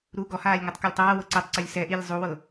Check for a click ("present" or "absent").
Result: present